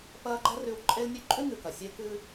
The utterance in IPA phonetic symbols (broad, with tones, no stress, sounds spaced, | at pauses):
p ɐː˦ ɡ͡ǃ ɐ˥ r ʉ˦ w ǃʼ e˦ l nʲ ʉ˦ ǃʼ ʉ˥ ŋ ɨ˨ k ɐ˩ sʲ e˦ k ɨ˦